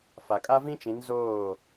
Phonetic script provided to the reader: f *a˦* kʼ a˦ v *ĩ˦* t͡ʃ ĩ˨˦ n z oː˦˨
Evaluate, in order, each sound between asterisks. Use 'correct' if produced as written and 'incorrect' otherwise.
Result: incorrect: a˨, correct

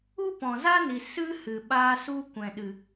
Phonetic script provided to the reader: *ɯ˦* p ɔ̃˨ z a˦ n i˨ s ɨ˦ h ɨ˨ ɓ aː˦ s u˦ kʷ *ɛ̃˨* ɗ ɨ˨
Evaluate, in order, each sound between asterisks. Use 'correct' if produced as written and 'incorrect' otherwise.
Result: incorrect: u˦, correct

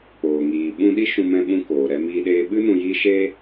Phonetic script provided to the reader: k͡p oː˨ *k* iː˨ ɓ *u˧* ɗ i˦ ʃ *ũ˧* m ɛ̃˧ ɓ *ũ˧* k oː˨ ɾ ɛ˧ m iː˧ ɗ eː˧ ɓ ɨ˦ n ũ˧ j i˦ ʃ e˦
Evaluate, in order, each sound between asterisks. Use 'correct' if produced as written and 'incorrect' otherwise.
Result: incorrect: ŋ, incorrect: ũ˧, correct, correct

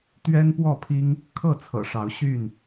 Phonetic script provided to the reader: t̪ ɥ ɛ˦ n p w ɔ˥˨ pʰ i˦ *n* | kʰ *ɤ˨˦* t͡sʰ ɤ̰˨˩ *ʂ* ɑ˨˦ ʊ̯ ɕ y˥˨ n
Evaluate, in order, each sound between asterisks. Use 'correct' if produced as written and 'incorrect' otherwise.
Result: incorrect: ŋ, incorrect: ɤ˥˨, correct

